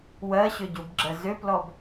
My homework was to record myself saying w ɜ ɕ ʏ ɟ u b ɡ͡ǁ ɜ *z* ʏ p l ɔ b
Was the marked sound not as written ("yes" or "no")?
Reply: no